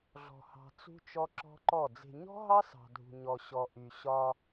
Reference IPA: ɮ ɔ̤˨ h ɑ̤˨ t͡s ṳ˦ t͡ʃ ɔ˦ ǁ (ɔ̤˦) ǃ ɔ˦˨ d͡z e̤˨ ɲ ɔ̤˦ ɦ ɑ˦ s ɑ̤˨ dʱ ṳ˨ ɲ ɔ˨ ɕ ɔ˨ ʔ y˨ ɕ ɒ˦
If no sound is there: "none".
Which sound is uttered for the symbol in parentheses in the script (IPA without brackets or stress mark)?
ɔ̤˦